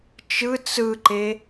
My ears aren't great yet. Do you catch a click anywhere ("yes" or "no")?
yes